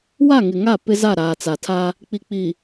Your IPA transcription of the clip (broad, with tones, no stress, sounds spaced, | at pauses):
w a˦˨ ŋ ɪ˨ ŋ a˦˨ p ɪ˦ z a˦˨ ɾ aː˨ t͡s a˨ tʰ a˦ | k͡p i˨ k͡p i˨